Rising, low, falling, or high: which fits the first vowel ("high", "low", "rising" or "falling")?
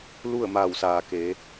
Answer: falling